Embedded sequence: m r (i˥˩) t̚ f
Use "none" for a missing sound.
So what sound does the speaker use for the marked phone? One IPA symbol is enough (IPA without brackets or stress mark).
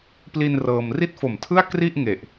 i˥˩